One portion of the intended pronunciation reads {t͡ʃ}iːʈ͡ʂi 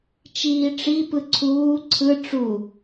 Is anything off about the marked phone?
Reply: no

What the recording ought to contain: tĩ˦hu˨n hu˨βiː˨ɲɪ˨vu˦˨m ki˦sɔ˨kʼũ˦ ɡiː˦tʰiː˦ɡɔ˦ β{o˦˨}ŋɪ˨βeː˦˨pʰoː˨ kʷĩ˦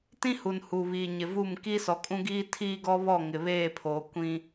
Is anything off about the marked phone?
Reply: yes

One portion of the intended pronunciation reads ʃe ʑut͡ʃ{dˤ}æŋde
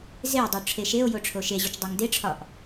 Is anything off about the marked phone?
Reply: no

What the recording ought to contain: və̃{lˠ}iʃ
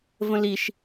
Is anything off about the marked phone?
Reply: yes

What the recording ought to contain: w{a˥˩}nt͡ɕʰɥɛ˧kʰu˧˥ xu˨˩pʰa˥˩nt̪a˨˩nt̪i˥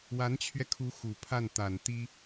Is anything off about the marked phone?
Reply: yes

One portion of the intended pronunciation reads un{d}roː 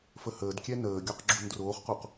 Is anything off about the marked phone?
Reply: no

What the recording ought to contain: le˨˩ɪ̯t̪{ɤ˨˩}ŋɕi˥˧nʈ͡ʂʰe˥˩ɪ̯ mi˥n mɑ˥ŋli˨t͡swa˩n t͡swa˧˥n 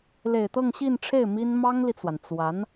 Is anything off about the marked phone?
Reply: yes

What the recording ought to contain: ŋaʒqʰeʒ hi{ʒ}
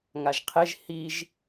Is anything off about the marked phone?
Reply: no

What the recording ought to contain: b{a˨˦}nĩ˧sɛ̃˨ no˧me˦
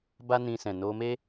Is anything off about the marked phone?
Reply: yes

